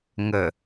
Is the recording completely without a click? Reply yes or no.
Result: yes